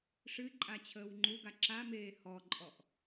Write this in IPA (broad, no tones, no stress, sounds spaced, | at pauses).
ʂ ɨ ǃʼ a t͡ɕʰ əː w ŋ͡ǃ u ɡ a ǁ a m eː h ɔ ǃʼ ɔ ʔ